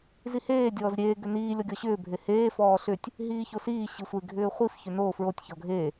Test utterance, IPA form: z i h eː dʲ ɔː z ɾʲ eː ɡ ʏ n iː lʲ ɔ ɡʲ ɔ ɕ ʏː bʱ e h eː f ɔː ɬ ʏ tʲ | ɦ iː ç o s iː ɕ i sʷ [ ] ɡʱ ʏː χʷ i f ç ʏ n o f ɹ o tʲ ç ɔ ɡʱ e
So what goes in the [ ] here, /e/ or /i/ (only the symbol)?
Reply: e